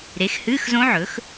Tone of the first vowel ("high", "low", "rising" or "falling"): rising